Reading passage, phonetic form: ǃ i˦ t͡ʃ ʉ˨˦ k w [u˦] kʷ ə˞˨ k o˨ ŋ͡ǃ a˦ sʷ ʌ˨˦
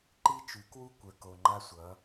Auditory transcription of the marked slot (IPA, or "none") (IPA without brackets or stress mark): u˦